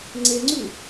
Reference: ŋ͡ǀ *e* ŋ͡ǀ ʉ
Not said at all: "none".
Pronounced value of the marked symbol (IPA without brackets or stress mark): e